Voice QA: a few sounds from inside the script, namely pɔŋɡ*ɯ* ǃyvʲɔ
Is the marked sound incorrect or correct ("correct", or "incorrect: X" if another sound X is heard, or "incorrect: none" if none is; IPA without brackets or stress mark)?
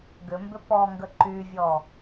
incorrect: ə